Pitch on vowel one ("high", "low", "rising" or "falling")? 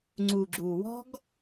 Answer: low